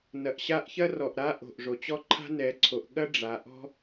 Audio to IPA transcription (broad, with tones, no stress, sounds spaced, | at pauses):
n ɐ˨ ʔ ɕ a˥ ʔ ç ɐ˥ r ɔ˨ ʔ ɾ a˥ ʔ o̤˨ ʔ ʐ o˨ t͡ɕ ɔ˥ ǃʰ a̤˥ n ɛ˨˦ ǀʰ o˨˦ ʔ ɠ ɐ˥ ɖ͡ʐ a˨˦ ʔ ɔ̤˥